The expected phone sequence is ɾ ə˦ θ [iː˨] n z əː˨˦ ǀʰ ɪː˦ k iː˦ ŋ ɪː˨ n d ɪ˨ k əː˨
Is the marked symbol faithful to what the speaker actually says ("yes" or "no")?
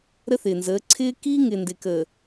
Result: no